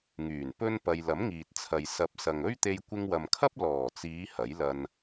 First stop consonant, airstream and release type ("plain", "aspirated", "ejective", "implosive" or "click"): plain